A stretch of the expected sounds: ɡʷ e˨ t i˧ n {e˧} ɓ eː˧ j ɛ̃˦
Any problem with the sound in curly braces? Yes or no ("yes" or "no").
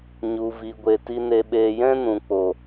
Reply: no